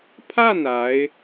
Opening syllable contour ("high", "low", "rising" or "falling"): falling